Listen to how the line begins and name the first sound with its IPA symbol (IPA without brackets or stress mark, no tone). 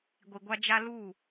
ɡʷ